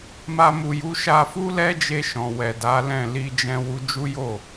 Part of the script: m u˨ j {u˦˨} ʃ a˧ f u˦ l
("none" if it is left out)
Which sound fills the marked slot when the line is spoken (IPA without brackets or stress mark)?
u˨˦